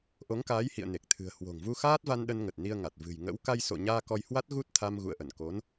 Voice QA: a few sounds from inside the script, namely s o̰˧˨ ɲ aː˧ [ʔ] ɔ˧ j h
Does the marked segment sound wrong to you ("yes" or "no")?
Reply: yes